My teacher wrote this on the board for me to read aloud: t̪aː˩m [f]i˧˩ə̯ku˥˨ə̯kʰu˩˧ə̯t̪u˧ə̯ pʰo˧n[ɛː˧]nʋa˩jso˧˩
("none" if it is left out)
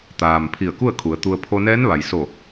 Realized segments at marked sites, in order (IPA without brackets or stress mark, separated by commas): pʰ, ɛː˧˥